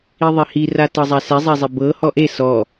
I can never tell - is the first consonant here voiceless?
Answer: no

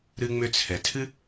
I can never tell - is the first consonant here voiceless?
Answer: no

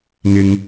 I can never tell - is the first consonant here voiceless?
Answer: no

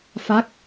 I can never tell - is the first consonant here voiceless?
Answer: yes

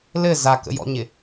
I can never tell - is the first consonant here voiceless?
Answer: no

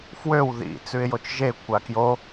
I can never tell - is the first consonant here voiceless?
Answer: yes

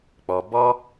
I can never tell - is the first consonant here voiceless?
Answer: yes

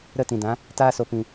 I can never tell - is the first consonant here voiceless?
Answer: no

